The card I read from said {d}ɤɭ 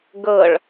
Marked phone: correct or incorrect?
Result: incorrect